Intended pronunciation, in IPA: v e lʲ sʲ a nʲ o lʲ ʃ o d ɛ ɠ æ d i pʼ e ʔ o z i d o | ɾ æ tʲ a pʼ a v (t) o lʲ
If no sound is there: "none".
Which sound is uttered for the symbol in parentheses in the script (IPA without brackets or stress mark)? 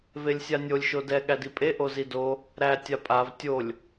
tʲ